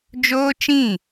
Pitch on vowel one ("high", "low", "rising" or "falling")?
high